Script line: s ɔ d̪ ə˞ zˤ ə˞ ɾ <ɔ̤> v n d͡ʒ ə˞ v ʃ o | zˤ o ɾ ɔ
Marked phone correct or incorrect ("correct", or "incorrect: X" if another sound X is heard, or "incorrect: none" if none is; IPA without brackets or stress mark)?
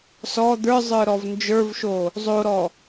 incorrect: ɔ